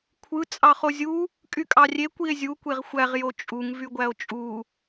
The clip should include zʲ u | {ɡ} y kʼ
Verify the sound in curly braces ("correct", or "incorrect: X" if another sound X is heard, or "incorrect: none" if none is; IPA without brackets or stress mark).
incorrect: kʼ